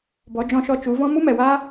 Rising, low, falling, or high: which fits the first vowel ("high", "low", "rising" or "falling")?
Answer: rising